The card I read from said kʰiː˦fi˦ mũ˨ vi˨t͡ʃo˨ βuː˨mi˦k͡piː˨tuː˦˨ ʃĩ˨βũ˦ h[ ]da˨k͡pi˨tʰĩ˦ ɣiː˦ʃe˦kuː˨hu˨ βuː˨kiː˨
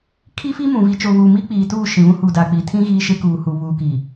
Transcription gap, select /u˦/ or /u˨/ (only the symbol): u˨